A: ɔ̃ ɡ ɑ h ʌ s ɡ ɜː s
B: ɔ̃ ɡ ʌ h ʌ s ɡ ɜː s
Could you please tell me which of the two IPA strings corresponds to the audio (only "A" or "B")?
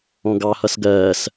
A